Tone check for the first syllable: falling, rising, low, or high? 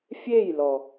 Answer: falling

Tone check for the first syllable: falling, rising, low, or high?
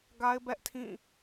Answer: high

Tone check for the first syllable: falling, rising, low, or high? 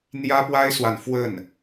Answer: high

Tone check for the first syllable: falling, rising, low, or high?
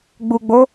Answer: low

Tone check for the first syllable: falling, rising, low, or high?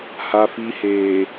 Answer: low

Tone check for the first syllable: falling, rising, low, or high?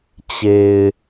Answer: low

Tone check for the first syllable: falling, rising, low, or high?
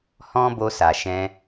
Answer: high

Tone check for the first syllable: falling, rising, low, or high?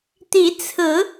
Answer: rising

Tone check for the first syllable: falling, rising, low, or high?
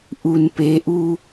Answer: low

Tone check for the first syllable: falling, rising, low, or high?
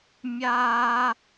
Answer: high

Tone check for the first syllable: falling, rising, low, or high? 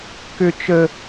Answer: high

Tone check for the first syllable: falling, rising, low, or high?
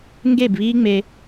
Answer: falling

